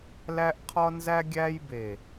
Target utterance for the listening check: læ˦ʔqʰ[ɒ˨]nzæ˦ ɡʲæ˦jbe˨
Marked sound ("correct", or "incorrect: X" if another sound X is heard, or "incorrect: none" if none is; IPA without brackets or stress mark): incorrect: ɒ˦